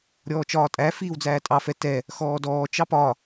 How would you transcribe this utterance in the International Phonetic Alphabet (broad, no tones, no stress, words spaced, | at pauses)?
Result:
ɾʲɔːt͡ʃɒːtʼæ fiːwd͡zæːtʼɑ fɛtɛ | xɔːdɔː t͡ʃɑpɒ